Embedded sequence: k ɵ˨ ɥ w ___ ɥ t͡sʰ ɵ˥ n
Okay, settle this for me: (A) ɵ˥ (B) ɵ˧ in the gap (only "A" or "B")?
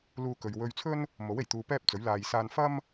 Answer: B